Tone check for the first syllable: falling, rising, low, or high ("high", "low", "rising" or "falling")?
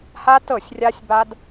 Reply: high